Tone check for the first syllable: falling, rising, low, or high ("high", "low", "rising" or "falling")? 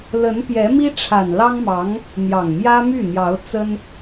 rising